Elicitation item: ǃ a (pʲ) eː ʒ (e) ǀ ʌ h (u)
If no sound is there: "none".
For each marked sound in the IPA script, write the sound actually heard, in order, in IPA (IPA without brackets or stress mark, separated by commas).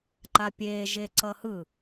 pʲ, e, ɯ